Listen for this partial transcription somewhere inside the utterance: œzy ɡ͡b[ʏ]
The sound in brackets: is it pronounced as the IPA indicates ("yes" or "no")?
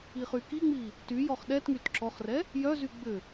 yes